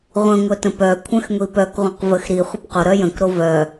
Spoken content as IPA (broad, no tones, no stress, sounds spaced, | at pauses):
ʁʷ ə̃ ŋʷ œ t ə̃ p œ kʷʰ œ̃ x ŋʷ i p œ k ʁʷ ə̃ q v ə x ɾ i χʷ ə p q o ɾ œ j ə̃ k ɾ o v œ